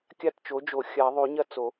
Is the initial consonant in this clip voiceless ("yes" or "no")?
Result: yes